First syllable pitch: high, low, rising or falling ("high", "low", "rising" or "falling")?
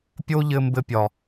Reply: high